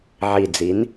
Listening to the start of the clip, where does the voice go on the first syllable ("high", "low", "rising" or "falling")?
low